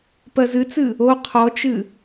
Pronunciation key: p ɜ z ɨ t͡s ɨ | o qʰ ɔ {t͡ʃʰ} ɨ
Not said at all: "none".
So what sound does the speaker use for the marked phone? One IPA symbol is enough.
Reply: t͡ʃ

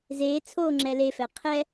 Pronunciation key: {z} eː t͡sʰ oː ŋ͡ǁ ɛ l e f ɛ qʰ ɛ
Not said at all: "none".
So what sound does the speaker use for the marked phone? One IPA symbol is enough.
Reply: z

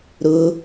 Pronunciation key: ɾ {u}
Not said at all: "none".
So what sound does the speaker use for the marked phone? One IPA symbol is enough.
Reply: ʊ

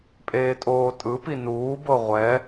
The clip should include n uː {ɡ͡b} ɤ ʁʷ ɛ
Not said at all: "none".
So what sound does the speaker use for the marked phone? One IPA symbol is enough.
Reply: b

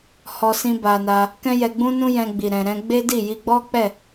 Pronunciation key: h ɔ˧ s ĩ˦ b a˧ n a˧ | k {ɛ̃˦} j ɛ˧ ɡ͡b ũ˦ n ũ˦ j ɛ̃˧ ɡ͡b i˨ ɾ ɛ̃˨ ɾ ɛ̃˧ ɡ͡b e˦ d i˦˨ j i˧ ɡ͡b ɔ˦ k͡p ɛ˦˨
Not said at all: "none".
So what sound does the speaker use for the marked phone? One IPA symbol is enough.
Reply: ɛ̃˦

